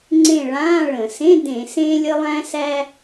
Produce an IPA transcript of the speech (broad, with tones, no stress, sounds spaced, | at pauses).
ŋ͡ǀ ẽ˦˨ ɭ ãː˧˥˧ ɭ ə̃˧˩˧ s ẽ˧˥˧ d ẽ˧˩˧ s ẽː˥ lʲ ə˥ lˠ æ̃˥ s æ˥